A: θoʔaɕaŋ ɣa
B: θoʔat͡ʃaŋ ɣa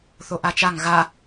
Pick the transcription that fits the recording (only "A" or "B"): B